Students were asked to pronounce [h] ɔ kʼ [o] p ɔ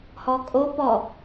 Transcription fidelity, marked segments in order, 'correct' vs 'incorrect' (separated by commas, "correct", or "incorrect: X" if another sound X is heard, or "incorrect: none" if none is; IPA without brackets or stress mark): correct, correct